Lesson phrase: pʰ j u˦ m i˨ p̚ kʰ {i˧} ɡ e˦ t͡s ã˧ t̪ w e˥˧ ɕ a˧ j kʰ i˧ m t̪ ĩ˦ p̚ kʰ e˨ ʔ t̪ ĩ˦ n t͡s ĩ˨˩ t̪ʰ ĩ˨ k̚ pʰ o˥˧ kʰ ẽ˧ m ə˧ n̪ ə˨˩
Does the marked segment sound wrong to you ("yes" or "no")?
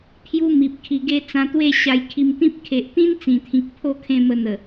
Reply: no